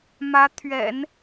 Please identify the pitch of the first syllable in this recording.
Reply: rising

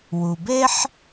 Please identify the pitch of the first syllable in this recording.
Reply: low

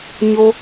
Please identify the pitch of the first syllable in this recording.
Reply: high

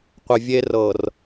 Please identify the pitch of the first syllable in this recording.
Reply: low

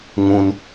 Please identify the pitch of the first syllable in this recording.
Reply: high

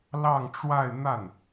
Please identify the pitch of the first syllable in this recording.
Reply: falling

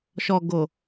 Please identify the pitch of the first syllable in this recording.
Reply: low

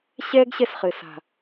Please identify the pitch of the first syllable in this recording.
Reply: high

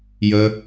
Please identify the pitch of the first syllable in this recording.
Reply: high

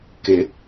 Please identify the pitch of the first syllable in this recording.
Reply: rising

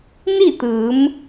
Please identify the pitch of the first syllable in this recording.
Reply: falling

